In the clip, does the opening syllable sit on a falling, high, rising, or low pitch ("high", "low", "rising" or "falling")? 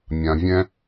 low